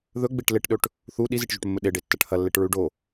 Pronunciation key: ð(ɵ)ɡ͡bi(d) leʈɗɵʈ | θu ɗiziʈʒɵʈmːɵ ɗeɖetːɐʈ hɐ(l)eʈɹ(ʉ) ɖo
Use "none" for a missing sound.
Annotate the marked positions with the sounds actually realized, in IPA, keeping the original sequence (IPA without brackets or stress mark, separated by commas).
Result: ɵ, ʈ, lː, ʉ